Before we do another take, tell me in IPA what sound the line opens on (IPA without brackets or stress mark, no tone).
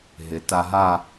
ɦ